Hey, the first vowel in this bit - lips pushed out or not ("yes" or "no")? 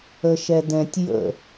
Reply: no